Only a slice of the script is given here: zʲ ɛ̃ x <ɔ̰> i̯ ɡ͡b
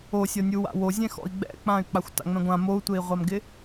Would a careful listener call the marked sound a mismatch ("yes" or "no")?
no